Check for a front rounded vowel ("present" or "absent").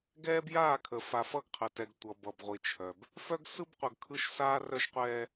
present